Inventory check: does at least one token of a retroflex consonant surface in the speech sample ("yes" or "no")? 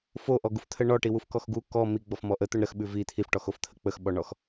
yes